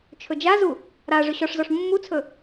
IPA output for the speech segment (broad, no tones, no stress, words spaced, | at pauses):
t͡ʃʰɵd͡ʒazu | ɾa ʐɵɕɔʂzɔʂ mːut͡sʰɵ